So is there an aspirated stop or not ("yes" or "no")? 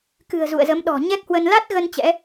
no